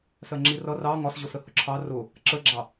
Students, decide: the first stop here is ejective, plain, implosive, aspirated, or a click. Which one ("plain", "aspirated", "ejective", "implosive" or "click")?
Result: click